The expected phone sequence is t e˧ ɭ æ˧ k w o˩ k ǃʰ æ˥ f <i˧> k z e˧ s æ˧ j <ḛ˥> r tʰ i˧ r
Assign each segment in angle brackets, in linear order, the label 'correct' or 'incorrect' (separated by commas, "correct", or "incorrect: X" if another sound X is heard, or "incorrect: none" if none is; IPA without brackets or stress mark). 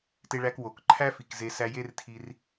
incorrect: i˩, incorrect: e˥